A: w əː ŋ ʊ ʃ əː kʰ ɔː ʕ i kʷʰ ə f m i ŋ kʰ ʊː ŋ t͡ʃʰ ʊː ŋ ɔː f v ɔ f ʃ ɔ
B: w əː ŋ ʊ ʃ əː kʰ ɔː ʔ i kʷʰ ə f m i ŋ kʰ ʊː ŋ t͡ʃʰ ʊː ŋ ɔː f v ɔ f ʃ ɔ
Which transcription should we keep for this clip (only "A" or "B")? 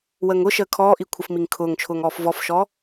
B